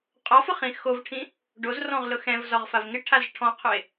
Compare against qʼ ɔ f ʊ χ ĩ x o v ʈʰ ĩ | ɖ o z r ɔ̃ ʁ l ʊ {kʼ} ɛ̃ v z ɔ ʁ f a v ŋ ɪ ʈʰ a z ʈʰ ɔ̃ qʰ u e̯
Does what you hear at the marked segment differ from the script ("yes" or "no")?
yes